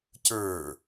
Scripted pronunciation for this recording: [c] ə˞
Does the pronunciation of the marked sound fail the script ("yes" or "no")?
no